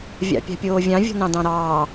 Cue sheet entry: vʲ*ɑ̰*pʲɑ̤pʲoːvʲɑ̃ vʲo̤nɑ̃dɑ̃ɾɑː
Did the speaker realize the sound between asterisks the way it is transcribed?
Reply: yes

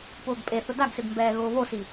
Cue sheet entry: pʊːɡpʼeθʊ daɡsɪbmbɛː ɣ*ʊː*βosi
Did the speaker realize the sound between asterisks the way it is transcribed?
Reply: yes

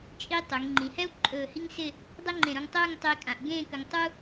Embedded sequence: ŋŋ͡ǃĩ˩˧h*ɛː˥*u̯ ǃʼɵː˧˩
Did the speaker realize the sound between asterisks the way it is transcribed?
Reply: no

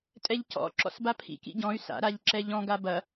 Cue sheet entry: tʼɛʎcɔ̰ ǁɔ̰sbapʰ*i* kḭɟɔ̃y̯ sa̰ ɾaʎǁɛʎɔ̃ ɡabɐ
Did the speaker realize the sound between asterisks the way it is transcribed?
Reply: no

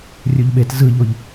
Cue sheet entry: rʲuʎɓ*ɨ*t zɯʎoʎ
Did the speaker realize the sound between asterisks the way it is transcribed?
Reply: no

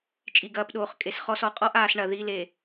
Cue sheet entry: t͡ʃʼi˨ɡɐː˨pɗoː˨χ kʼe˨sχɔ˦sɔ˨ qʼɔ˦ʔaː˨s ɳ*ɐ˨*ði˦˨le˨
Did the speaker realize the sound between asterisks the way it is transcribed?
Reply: yes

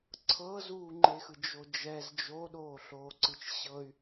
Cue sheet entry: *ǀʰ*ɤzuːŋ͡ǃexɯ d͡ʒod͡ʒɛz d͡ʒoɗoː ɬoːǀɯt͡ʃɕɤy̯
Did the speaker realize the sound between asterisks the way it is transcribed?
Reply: yes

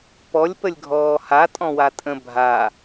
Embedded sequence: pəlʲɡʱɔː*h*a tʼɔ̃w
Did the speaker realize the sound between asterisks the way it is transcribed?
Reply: yes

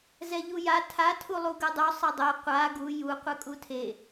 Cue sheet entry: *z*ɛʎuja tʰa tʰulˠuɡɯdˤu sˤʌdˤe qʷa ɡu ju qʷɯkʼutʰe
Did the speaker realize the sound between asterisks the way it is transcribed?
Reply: yes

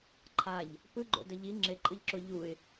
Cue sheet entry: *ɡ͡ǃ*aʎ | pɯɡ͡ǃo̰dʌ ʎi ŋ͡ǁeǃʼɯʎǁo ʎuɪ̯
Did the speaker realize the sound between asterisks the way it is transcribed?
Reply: no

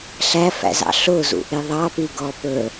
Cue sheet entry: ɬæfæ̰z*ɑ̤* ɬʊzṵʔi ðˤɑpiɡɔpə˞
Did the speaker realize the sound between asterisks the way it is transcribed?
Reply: no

